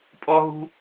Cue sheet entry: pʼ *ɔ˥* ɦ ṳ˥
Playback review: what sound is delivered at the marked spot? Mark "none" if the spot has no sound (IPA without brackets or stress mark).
ɔ˥